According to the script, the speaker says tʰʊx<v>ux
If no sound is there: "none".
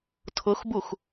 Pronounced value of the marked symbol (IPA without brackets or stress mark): b